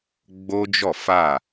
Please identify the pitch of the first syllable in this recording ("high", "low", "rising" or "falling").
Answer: high